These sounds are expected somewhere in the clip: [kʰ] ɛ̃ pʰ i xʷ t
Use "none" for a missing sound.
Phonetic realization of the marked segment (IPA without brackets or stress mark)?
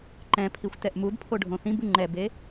ǃ